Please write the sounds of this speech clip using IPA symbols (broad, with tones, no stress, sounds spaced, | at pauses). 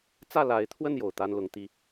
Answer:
t͡s ä˥˨ l a˨˦ ɪ̯ t̪ʰ w ə˥˨ n j o˩ ʊ̯ t̪ a˦ n l ʊ˨˦ ŋ t̪ i˦